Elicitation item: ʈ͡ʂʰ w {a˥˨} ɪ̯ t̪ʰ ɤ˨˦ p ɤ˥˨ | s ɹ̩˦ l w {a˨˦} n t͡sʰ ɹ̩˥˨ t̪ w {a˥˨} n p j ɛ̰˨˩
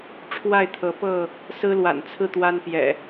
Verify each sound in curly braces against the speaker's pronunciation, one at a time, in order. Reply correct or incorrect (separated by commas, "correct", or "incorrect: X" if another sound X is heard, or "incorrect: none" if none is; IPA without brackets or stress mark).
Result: correct, incorrect: a̰˨˩, incorrect: a˦